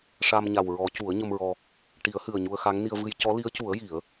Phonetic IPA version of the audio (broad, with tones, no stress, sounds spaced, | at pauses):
ʂ a˧ m ɲ a˨˩ w ɹ ɔ˨˩˦ c u˨˩˦ ə̯ ɲ ə˧ m ɹ ɔ˧ | ʈ i˨˩˦ ə̯ h ɨ˨˩ ə̯ ɲ u˧ ə̯ x a˧˥ ŋ n i˧ ə̯ v ɨ˧ j c ɔ˧˥ l i˧˥ ə̯ c u˨˩˦ ə̯ j i˨˩˦ ə̯